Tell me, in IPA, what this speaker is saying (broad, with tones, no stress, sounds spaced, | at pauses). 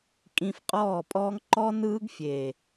kʼ ĩ˧ f qʼ ɔː˦˨ pʼ ɔː˦ ŋ ǃ ɔ˦ n ɯː˦ ɡ fʲ eː˨